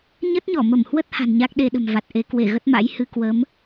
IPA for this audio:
ɲə˦˥t̚ɲɔ˧˩mə˧˩mhwə˦˥t̚ ha̤˨˩nɲa˦˥k̚ ɗe˧ɗə̤˨˩m va˨˩t̚ʔe˨˦ kwe˧˩ɣə˦˥t̚ma̰˧˥j hɨ˧ kwə˨˦m

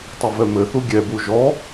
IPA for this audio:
tˤɐvɛmɘθu ɡʲɛbu ʒɔ

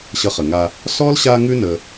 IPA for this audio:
ɕʌ˨χə˩ŋa˨ | sɔ˥lɕa˦ŋʉ˦ nə˨

